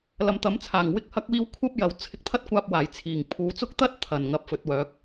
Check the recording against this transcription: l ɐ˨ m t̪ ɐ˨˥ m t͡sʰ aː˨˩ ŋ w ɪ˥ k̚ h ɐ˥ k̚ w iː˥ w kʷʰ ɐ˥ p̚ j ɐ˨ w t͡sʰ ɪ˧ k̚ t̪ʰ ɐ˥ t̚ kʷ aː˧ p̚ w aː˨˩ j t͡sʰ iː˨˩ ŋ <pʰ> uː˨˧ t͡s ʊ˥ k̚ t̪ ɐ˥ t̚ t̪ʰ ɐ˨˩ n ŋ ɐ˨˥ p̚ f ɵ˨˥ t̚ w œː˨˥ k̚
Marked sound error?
no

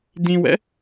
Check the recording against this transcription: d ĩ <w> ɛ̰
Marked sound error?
no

